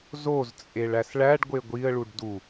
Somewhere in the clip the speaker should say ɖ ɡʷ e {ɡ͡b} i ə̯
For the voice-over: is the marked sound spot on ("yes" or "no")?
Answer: no